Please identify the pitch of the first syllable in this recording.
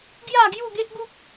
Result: falling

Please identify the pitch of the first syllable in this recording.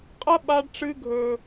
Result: high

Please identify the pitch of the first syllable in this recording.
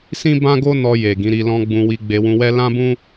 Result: high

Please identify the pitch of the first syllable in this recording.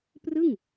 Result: falling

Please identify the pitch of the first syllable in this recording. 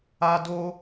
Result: high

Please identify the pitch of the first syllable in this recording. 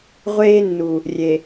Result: high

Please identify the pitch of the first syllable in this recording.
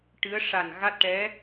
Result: rising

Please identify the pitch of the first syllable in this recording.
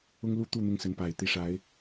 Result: high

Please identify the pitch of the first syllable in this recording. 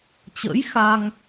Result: rising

